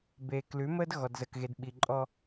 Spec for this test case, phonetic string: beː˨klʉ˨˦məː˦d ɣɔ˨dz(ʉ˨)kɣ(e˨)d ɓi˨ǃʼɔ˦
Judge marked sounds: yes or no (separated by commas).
no, yes